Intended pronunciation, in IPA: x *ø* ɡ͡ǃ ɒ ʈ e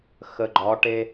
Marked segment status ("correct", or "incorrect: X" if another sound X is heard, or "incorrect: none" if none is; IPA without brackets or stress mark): incorrect: ə